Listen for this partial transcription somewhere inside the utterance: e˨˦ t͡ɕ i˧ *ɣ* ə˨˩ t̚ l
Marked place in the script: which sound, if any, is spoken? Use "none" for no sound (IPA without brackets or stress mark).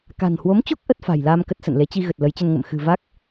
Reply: ɣ